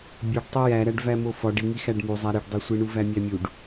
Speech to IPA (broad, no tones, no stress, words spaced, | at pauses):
bʲoɖtˤo jæɾæɖ væmofɒɖ iŋi xæɖmuzˤæ ɾiɖdˤesʷiɳu væmʲæmʲuɖ